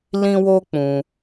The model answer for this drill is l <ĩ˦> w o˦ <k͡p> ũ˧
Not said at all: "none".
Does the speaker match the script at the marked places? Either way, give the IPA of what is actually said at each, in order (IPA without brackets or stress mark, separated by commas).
ĩ˦, k͡p